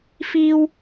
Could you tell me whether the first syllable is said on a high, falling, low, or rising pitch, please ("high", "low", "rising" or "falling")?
high